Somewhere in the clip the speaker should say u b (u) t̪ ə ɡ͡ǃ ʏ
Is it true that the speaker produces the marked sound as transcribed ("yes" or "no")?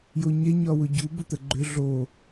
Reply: no